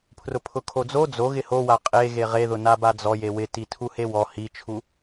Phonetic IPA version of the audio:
pʰrʊpʰʊkʰod͡zo d͡zo ɣɪhowa qʼe ɣeʁeðʊ nabad͡zɔ jewɪ titʰuhewɔ hit͡ʃʰu

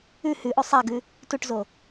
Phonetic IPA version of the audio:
ʉ hʉʔo sˤaɡʉ | tuʈzo

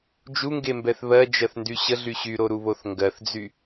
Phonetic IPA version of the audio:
d͡ʒuŋɡembɛθ βɜd͡ʒɜθndy ɕəɮy ɕyɾoɾuβoθ ŋɡɜθd͡zy

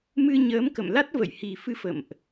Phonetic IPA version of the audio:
mɨ˧ɲəː˨˦mkə̰˧˨mla˦˥t̚ və̰˧˨jhi˨˩fɨ˨˦ fə̰˧˨mʔ

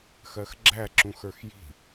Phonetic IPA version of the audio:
xɜxɡ͡ǁæ ǁũxə˞xji̤

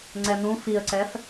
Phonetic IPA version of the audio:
ŋ͡ǀɛnũ fiə̯ǀɛf

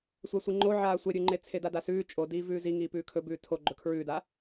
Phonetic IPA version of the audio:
sʷasʷiŋ͡ǃo ʕaːsʷeɾʲʉŋ͡ǃe t͡sʰedadasʉː t͡ʃʼo diːvʉːzi ŋiːpʉːkʰɵ bʉːtʰo ɡ͡ǃɵkʰɹʉːda

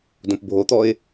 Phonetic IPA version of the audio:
dõpbʱot̪ɔɪ̯

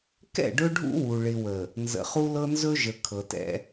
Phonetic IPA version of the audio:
kɛ̰˦˨ ɖɵ˦ɖʱṵ˦wu˨ ɭɪ˨wə˨ | nzə̰˨χu˦lɤ˦ nzɵ˦ʒə˨ kʰɤ˨tɛ̰˦

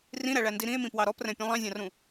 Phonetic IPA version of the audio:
rĩɾæɭændi ɾĩe̯mĩpwɑ ɾɔprɛ̃pʲũ lˠɑ̃zʲɑ̃rũ

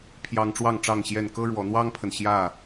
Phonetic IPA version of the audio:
pʰjɑ˦ŋ ʈ͡ʂwɑ˥˨ŋʈ͡ʂɑ˥˨ŋɕjɛ˥˨n kɤ˦ɻwɔ˨˦n̪wɑ˦ŋpʰə˨n ɕjä˥˨

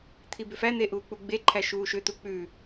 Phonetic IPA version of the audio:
t̪ʰibʏfæn̪e ʔuːk͡puɡ͡beǃʰæ ʃuːʃʏt̪u k͡pʉ

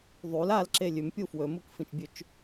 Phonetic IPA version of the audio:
ðˤul alǁe lʲʉmpʲu fwɵmukfĩt͡ʃbʲʉt͡ʃ

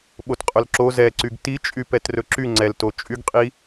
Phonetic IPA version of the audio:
ɓotqʼɵlǁo zɛǀyɡ tit͡ʃʼypɛt rɵǁy ŋ͡ǀɛlto t͡ʃʼyɡqʼi

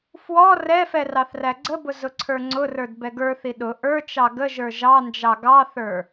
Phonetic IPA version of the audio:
fwɔ rɛfɛ rɑθræɡ͡ǀəbʊ zʊǀʰə˞ŋ͡ǀʊrə˞d bɛɡə˞θi ɗʊ ʔə˞t͡ʃɑ ɡəʒə˞ ʒɑnd͡ʒɑ ɡɑθə˞

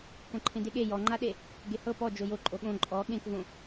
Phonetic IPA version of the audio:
kõǃʰẽdeɠe jɔŋ͡ǃaɗe | ɡehɤ pɔ d͡ʒojo ǃʼoɠõ ǃʼɔ ɠẽkvõ

